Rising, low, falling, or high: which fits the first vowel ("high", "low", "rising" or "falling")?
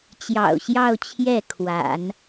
low